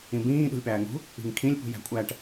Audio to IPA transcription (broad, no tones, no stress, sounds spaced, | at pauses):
ĩ b ĩː ɗ ṳ lʲ p æː ŋ ṳ | i̤ ŋ kʰ ĩ lʲ p ṳ j æ̤ kʷʼ æ ʈ